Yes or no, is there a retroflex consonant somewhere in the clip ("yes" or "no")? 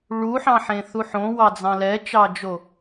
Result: yes